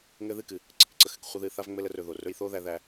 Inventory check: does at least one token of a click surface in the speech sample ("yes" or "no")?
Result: yes